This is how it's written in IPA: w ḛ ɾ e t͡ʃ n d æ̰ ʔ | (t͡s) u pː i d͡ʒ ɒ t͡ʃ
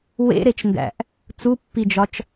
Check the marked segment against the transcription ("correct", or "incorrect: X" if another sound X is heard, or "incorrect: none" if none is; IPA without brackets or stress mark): correct